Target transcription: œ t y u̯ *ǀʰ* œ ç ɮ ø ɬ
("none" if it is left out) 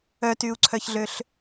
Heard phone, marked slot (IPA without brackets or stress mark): ǀʰ